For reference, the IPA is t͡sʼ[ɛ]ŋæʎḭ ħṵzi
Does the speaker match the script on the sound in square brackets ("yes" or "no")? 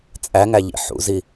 no